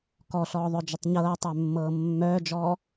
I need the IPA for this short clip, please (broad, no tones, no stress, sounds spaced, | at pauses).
k ɔ ɬ ɔː ðˤ œ d͡ʒ ə tˤ ɲ ɤː tˤ œ mː ɤː mː œː d͡ʒ ɔː